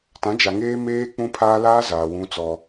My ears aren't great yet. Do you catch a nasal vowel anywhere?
yes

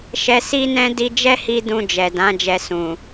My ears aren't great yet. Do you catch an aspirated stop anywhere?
no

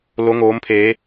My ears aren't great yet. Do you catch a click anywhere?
no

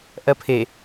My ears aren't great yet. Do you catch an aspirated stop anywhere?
yes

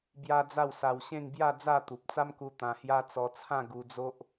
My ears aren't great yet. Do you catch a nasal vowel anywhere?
yes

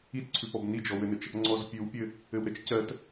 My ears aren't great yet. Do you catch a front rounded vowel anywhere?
no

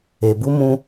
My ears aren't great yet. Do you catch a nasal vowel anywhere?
yes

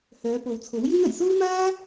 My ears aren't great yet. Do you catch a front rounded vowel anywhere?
yes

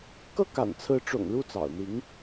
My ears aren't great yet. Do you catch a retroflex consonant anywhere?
yes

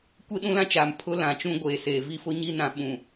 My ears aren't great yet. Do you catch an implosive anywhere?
yes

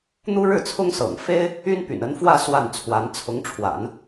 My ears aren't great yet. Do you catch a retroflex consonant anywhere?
yes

